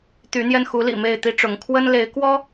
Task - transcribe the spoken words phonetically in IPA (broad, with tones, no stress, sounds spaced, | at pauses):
t̪ y˨˦ n̪ j ɛ˧ n x u˨˦ l ḭ˨˩ m e˥˨ ɪ̯ t̪ i˦ ʈ͡ʂ ʊ˨˦ ŋ kʰ w ə˦ n l e˨˦ ɪ̯ k w ɔ˦